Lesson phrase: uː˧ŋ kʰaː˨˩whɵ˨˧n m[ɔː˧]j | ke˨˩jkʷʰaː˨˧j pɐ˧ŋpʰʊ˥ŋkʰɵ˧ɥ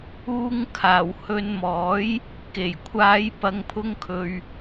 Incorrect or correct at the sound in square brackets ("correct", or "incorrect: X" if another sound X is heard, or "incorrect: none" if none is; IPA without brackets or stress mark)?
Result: incorrect: ɔː˨˥